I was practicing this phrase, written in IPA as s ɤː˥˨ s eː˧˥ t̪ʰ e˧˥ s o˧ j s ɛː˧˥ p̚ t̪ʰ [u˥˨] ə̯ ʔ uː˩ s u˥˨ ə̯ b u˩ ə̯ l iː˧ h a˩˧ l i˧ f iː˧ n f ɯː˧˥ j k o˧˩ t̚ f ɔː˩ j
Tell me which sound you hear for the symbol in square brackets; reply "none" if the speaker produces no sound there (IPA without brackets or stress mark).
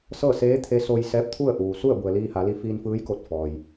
u˥˨